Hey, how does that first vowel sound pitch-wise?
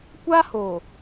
high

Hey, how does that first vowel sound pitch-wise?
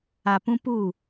low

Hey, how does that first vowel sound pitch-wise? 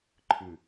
low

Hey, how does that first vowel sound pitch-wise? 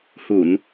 low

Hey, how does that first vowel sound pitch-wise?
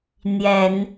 low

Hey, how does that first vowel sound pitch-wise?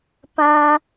high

